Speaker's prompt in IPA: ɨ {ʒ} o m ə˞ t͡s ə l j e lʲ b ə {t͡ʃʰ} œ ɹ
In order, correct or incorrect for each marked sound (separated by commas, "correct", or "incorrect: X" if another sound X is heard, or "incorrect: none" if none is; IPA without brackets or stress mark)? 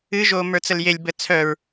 correct, incorrect: t͡sʰ